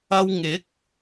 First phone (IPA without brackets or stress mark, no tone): ɐ